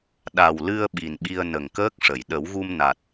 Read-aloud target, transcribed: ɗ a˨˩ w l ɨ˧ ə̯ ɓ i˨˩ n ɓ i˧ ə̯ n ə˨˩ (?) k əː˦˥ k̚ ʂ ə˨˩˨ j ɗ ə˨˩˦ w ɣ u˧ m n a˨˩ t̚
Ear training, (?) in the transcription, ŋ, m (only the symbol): ŋ